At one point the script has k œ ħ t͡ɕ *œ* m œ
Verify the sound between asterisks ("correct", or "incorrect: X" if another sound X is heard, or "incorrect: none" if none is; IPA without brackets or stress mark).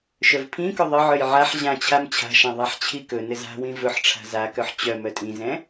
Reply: correct